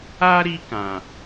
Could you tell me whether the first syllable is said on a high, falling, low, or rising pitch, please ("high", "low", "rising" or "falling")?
high